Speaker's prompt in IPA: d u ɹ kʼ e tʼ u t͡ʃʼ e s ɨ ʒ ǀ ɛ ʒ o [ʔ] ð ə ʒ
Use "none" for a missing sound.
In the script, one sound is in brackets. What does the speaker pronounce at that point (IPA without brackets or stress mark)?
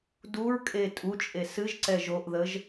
ʔ